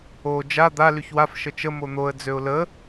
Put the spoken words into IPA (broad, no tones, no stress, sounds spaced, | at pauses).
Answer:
o d͡ʒ a d̪ a l y ç w a f ʃ ə t͡ʃ ə m o n̪ o ə̯ d͡z ø ʊ̯ l ə